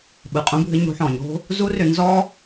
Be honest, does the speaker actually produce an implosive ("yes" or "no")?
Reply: yes